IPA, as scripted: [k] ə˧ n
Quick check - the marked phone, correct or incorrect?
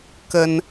correct